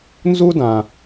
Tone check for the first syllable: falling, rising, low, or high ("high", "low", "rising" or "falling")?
high